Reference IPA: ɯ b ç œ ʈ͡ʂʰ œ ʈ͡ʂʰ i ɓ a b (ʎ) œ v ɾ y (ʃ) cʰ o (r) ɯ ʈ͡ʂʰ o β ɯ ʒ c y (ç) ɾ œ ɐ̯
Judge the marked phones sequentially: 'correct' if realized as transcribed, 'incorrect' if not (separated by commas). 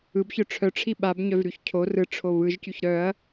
incorrect, incorrect, correct, correct